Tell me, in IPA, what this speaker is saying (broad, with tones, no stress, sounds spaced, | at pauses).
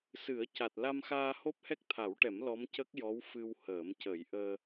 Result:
s ɨ˨˩˦ ə̯ c a˨˩ t̚ l a˧ m x aː˧ h o˦˥ p̚ h ɛ˦˥ k̚ t̪ʰ a˨˩˦ w ʈ ɛ˨˩˦ m l ɔ˧˥ m c ə˦˥ k̚ j ɔ˧˥ w f ɨ˧ w h əː˨˩˦ m c ə˨˩˦ j ʔ əː˧